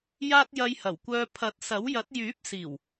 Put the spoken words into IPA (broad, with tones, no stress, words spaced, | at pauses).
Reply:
jaː˥t̚jɐ˧jhɐ˨˩wkʷœː˧ pʰɐ˨˥t̚sɐ˨˥wjɐ˨˥t̚ jyː˨˥p̚siː˨˩w